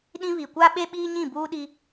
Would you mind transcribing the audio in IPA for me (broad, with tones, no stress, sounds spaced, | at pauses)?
ɗ ĩ˦ β i˨ kʷ a˦ ɓ e˦ ɓ iː˦ ɲ ĩ˦˨ b uː˦ ɗ i˦